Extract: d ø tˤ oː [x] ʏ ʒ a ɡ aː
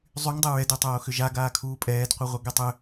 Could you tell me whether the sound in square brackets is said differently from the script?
no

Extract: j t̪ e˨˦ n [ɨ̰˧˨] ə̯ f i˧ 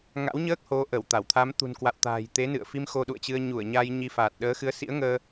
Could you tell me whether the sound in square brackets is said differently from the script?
no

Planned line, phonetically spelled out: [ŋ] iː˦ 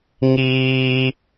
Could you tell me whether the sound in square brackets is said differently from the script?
no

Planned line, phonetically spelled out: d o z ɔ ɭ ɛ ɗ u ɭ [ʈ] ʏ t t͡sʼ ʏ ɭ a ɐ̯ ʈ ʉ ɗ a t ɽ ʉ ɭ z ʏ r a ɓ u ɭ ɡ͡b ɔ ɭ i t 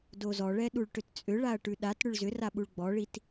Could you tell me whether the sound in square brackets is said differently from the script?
no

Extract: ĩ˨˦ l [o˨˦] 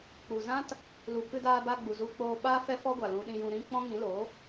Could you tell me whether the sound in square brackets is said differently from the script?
no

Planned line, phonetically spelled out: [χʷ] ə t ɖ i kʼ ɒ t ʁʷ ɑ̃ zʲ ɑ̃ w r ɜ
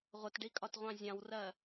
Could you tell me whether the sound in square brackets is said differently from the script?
yes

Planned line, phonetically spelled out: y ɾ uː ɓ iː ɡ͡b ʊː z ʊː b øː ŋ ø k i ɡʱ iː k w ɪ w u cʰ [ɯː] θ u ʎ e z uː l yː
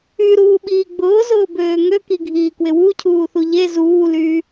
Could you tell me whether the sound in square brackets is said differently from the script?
yes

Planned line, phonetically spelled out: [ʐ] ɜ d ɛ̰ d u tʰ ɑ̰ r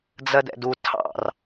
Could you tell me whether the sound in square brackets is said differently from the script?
yes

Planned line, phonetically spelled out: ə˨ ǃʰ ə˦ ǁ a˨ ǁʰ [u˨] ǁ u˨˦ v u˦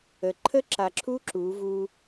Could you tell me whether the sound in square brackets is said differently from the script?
yes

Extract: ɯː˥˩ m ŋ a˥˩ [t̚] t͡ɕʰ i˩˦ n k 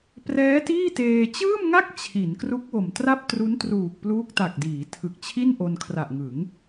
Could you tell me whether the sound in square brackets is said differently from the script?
yes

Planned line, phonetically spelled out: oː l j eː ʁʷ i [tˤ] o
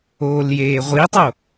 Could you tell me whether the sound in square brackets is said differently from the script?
no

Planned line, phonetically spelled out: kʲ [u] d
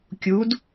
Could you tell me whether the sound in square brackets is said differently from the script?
no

